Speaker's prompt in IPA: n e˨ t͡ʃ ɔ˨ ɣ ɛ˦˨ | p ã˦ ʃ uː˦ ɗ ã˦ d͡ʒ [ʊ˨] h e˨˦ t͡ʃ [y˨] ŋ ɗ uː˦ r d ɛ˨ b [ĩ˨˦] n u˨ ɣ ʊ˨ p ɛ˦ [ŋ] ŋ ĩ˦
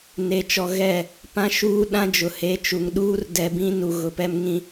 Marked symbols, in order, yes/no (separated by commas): yes, no, yes, no